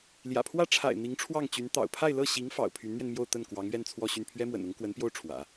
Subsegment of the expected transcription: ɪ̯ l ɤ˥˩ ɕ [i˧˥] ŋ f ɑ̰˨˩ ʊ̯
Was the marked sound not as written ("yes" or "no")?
no